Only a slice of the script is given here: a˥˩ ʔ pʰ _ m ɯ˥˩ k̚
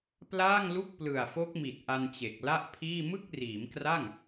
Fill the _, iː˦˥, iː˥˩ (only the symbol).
iː˥˩